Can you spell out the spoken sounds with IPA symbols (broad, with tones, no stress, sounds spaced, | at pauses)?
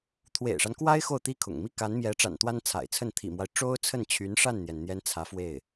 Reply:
t̪ʰ w ḛ˨˩ ɪ̯ ʂ a˦ n k w a˥ ɪ̯ x o˥˩ ʊ̯ t̪ i˥ kʰ ʊ̰˨˩ ŋ m i˥˩ k a˧˥ n m j ɛ˧˥ ʈ͡ʂ a̰˨˩ n t̪ w a˥ n t͡sʰ a̰˨˩ ɪ̯ t͡sʰ ə˥˩ n t̪ʰ ḭ˨˩ m w a˦ ɪ̯ ʈ͡ʂ o˥ ʊ̯ t͡sʰ ə˥˩ n t͡ɕʰ y˧˥ n ʂ a˥˩ n n̪ j ɛ˩ n n̪ j ɛ˥ n t͡sʰ ä˧˥ f w e˥˩ ɪ̯